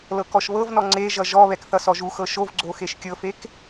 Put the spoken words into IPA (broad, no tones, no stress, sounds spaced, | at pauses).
l ɤ k ɔ ʃ β ɤ v n ɔ ŋ͡ǀ e ʒ ʌ ʒ ɔ β ɛ k θ ʌ s ɔ ʒ u x ɤ ʃ o v ɡ͡ǀ o x e ʃ kʲ ɤ f e k